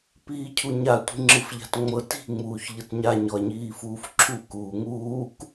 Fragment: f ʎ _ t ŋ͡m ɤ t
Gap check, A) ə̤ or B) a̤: B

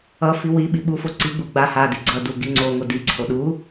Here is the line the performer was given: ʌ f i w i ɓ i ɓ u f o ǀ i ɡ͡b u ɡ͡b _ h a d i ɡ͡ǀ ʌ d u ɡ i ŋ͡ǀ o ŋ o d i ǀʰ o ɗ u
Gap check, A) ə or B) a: B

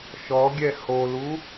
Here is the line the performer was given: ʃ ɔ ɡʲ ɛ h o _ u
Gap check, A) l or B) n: A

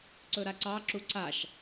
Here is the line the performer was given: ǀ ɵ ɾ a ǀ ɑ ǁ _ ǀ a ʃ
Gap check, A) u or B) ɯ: A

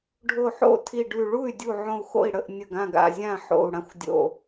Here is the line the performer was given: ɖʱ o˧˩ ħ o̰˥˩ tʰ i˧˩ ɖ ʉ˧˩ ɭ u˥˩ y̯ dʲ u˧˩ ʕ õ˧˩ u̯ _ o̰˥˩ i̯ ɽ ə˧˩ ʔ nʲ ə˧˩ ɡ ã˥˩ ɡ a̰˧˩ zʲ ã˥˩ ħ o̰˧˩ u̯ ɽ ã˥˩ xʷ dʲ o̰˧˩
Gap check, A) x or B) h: A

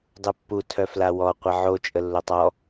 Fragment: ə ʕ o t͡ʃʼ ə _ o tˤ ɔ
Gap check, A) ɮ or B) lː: B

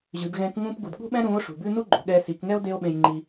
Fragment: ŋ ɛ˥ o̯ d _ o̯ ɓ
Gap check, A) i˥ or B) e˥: B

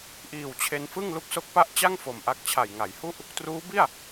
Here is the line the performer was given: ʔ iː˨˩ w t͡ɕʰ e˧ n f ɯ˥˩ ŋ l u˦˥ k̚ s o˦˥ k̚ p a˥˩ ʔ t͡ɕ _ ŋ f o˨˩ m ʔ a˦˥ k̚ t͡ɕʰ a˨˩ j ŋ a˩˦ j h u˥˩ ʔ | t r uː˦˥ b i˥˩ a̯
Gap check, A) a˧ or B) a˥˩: B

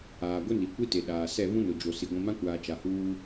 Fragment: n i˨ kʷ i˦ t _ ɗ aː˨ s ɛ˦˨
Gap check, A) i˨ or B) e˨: B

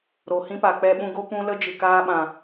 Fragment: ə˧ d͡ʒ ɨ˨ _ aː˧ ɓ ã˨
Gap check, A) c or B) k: B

